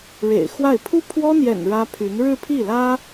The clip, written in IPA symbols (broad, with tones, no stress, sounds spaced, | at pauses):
ɻ ḛ˨˩ ɪ̯ x w a˥˩ ɪ̯ pʰ u˥ pʰ w ɔ˥ n̪ j ɛ̰˨˩ n ɻ ä˥ pʰ y˧˥ n ɻ ɻ̩˥˧ pʰ i˥˩ l ä˥